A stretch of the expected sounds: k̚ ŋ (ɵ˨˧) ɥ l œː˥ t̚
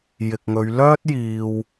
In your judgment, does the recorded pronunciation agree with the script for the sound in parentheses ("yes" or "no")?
yes